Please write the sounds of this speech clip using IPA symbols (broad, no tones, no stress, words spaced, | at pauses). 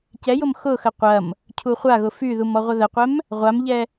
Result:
cɛjʊm xʊxə qʷɐm | cʰuχʷaɣʊ fyðum ɔʁʷəðəqʷɛm | ʁʷamʎɛ